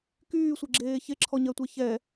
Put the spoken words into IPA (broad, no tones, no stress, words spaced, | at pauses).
kyːsʷeɡ͡ǁeː çeǁʰɔɲɜtʷɛ çɛ